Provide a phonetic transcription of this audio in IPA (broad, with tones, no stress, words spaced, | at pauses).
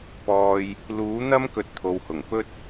pɔː˧j | luː˨˥n̪ɐ˥m kɵ˧t̚t̪ʰo˨whʊ˨˩ŋ pɵ˥t̚